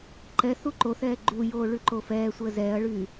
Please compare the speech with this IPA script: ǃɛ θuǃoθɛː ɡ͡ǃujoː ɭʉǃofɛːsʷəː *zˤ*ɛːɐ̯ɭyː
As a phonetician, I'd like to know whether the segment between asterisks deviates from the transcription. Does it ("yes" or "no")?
yes